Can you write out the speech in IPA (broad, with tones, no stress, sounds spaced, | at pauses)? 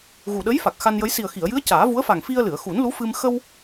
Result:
ɣ u˨˩ ɗ ə˧˥ j f a˨˩ k̚ x a˧ n j ə˧˥ j s i˨˩ ə̯ x i˨˩˨ ə̯ j ɨ˧˥ ə̯ c aː˨˩˦ v u˧˥ ə̯ f a˨˩ ŋ f i˧ ə̯ l ɨ˨˩˨ ə̯ x u˨˩˦ n l u˧˥ f ɨ˧ m x ə˧ w